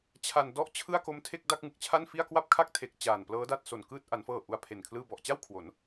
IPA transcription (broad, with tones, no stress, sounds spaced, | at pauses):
t͡ɕʰ a˧ n d ɔ˥˩ ʔ t͡ɕʰ ɯ˥˩ a̯ k o˦˥ m tʰ e˥˩ k̚ d a˥˩ k̚ ŋ ɯ˨˩ k̚ t͡ɕʰ a˥˩ n f i˥˩ a̯ k w a˥˩ p̚ kʰ a˥˩ k̚ tʰ e˨˩ k̚ t͡ɕ aː˨˩ n p l ɤː˦˥ d a˥˩ t̚ s o˨˩ n k ɯː˥˩ t̚ ʔ a˩˦ n f ɤː˨˩ ʔ u˧ a̯ pʰ e˨˩ n kʰ l ɯː˧ b ɔ˨˩ ʔ t͡ɕ a˥˩ w kʰ w o˩˦ n